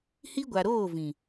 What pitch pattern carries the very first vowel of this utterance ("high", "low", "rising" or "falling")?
high